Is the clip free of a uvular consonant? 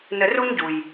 yes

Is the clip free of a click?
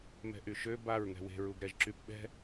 no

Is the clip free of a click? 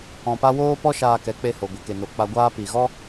yes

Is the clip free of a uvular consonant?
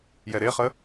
no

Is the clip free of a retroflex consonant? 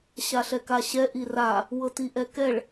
no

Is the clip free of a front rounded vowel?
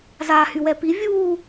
no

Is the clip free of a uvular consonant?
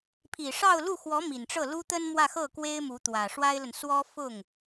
yes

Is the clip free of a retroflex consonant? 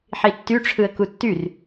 no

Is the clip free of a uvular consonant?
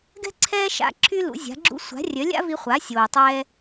no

